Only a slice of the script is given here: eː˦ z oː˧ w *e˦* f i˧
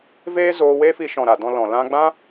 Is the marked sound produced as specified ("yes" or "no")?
yes